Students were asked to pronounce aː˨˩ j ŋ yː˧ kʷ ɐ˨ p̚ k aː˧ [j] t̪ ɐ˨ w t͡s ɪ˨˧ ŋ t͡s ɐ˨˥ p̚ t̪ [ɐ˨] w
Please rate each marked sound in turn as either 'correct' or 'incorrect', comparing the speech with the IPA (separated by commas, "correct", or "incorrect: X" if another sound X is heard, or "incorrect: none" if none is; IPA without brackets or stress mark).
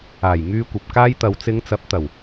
correct, incorrect: ɐ˨˩